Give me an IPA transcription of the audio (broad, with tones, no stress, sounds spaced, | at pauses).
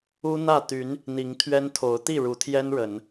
u˦ n̪ ä˥˨ t̪ y˨˦ n | n̪ i˨˦ ŋ t̪ʰ ɥ ɛ˦ n t̪ʰ o˨˦ ʊ̯ t̪ i˥˨ ɻ u˨˦ t̪ʰ j ɛ˦ n ɻ ə˨˦ n